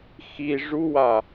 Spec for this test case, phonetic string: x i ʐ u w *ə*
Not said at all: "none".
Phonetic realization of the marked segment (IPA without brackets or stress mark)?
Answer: a